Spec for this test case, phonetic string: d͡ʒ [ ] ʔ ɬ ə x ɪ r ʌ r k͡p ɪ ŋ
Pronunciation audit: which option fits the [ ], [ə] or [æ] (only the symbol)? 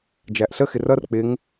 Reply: æ